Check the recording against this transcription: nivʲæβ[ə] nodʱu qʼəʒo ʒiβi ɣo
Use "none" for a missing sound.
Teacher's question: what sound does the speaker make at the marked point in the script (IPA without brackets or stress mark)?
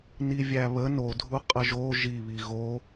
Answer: ə